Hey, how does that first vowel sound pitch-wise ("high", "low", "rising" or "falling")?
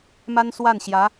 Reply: high